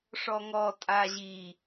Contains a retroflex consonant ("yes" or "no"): yes